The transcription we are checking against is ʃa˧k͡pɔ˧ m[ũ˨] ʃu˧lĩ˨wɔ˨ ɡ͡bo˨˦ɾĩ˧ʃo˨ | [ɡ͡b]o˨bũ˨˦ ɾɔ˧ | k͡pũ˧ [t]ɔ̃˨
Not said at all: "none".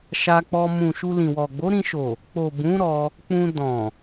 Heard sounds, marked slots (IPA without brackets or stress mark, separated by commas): ũ˨, k͡p, d